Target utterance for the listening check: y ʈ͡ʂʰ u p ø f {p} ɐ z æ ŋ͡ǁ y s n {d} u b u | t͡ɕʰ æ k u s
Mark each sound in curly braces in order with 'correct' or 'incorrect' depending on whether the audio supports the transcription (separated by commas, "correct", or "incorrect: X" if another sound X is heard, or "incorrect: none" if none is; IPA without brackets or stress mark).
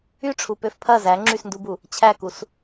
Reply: incorrect: pʰ, correct